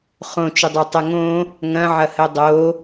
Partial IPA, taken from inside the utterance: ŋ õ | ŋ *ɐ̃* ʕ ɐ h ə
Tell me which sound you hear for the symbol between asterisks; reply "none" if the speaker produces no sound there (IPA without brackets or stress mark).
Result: ɐ̃